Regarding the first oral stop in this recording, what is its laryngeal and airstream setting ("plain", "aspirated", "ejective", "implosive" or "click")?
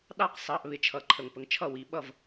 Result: implosive